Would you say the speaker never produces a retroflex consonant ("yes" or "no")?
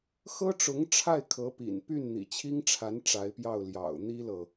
no